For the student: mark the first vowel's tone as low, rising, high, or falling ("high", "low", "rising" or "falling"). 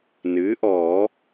rising